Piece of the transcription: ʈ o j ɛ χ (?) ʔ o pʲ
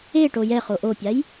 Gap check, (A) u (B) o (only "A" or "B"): B